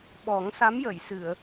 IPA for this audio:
ɓ ɔ˨˩˦ ŋ s a˧˥ m j ə˨˩˨ j s ɨ˨˩˨ ə̯

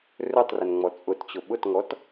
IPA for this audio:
r ɵ tˤ r ə n ŋ͡m ɔ t͡sʼ ʊ t t͡ɕ ʊ ɓ ʊ t ŋ ɔ t

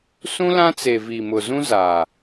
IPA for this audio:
s ũ˦ l ã˦ t͡s e˨ v iː˨ m ʊ˨ z ũ˦ z aː˨

